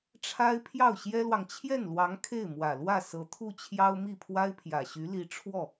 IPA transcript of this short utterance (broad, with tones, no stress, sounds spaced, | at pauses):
ʈ͡ʂʰ a˥ ɪ̯ pʰ j ɑ˥˩ ʊ̯ ɕ j ɛ˥ l w ɑ˨ ŋ t͡ɕʰ j ɛ˥˩ n l w ɑ˧˥ ŋ kʰ e˥˩ ɪ̯ m w ä˨˩ l w ä˥˩ s ɤ˧˥ t̪ʰ u˥˩ t͡ɕʰ j ɑ˥ ʊ̯ m i˥˩ pʰ w a˥ ɪ̯ pʰ j ä˨˩ ɕ y˧˥ l i˧˥ ʈ͡ʂʰ w ɔ˥˩